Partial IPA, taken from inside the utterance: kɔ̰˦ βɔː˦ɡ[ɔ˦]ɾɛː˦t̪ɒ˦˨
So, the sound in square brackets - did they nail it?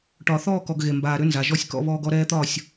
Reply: yes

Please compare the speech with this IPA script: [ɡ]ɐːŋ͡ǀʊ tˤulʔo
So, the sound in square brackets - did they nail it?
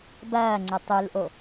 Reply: no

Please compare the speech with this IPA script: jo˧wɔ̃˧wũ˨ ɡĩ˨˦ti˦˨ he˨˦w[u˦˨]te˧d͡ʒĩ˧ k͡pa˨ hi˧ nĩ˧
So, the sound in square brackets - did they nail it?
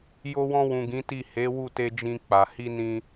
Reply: yes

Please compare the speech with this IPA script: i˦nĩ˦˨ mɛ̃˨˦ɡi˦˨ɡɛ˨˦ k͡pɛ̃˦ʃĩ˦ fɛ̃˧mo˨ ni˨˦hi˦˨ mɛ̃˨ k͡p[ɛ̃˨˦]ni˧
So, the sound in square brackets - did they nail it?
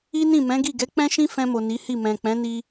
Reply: yes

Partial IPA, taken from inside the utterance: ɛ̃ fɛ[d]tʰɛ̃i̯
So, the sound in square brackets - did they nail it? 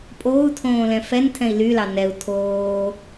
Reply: no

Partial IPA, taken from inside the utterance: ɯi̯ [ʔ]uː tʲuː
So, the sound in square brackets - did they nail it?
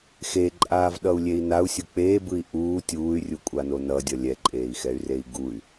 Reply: yes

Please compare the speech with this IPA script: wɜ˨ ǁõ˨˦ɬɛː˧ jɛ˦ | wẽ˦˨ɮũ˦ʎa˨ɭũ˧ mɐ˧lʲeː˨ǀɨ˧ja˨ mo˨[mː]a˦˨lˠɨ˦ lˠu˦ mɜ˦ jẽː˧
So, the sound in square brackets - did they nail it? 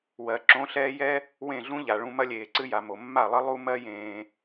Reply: yes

